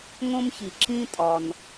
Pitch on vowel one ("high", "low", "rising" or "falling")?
high